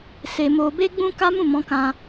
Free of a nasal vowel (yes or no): no